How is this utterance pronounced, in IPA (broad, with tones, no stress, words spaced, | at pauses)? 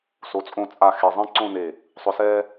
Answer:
so˩˧t͡sʼõ˧˩t͡sʼa˧˩ xe˧˩zˤɛ̃˥ǀõ˥˧ne˧˩ | sˤʊ˧sɛː˥